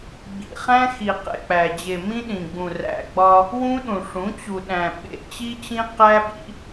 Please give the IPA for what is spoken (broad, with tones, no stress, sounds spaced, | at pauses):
ɡ͡b ḭ˨ χ æ̃˦ x i˨ q ḛ˨ k͡p æ˨ d͡ʑ e˨ m ĩ˦ ɗ ĩ˨ ɡ͡b ũ˨ r æ̰˨ ɡ͡b ɒ˦ | w ũ˦ ɗ ũ˨ ʂ ũ˨˦ t͡ɕ u˨ ɗ æ̃˨ ɓ ḛ˨ t͡ɕ i˦ t͡ɕ ĩ˦ q æ˦ ɓ ḭ˦